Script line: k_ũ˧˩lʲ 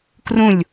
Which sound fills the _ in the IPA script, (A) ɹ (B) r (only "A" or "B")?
B